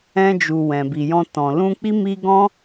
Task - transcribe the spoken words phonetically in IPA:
ɛ̃˧ d͡ʒ u˨ w ɛ̃˨ b i˨ j ɔ̃˧ t ɔ̃˨ l ũ˧ k͡p i˦ m i˦ ɡ ɔ̃˦

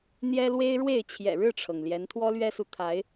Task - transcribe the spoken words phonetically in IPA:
n̪ j ɛ˦ l w e˦ ɪ̯ ɻ w e˥˨ ɪ̯ t͡ɕʰ j ɛ̰˨˩ ɻ ɻ̩˥˨ ʈ͡ʂʰ ɤ˩ ŋ l j ɛ˨˦ n t̪ʰ w ɔ˦ l ɥ ɛ˦ s u˨ t̪ʰ a˨˦ ɪ̯

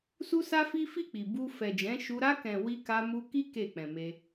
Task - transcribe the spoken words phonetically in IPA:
s u˦ s a˦ f i˦ f i˦˨ k͡p i˨ b u˧ f ɛ˨ d͡ʒ ɛ̃˨˦ ʃ u˧ ɾ a˧ k ɛ̃˨ w i˧ k a˧ m u˧ k i˦ k e˦˨ k͡p ɛ̃˨ m e˧

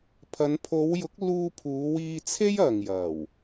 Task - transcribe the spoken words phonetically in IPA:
pʰ ɐ˨˧ n pʰ o˨˧ w j ʊ˨˥ k̚ l uː˧ pʰ uː˨˧ w iː˧ t͡sʰ e˥ j ɐ˨ ŋ j ɐ˨˩ w

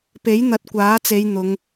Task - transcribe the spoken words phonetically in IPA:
p e˨˥ j n̪ ɐ˨˥ t̚ kʷ aː˨˥ t͡s e˨˧ j n̪ ʊ˨˧ ŋ

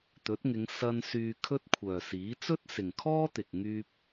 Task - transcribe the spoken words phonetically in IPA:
t̪ ɵ˨˥ t̚ ŋ ɪ˨˧ ŋ s ɐ˧ n s yː˧ kʰ ɵ˥ t̚ kʷʰ œː˨ s iː˨˥ t͡s ɵ˥ t̚ s ɪ˨ ŋ kʰ ɔː˥ t̪ ɪ˨ k̚ ŋ yː˥ p̚

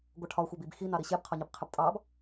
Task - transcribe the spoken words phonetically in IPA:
ɡʷ ʌ ʈʰ ɒ xʷ ɑ b i b x i n ɑ ɾ i ɕ ɛ b qʰ ɒ ɲ ɪ b qʰ ɪ b tʼ ɑ b

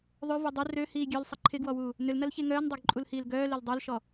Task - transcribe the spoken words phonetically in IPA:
ðˤ ø v ø dˤ ʏ r ø h iː ɡʲ œ l sˤ ə ǃʰ ɪ ɡ w ɔ w uː | n ʏ l n ɐ l ç e ŋ œː n dˤ ø ɡ ǃʼ u l h iː l ɡ œː l e l dˤ ø l ʃ ɔ

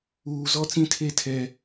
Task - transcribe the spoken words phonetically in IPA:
uː˨ z ɔ˦ t͡s ĩ˦ tʰ e˦ tʰ ɛ˦

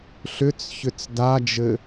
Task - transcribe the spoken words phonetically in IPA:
ɬ ʏ t͡s ç ʏ t͡s d a d͡ʒ ɘ

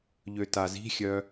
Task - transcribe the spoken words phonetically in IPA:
ʎ ø t a z i̤ xʲ œ

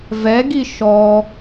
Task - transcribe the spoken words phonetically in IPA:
v ɛ ɡ i ʃ ɔ

